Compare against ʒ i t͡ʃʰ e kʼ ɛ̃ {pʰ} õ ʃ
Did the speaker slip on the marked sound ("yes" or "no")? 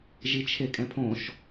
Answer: no